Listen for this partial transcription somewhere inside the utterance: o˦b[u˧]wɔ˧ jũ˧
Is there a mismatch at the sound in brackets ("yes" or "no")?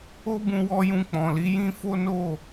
yes